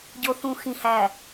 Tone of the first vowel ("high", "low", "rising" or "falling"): low